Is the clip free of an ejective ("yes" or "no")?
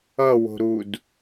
yes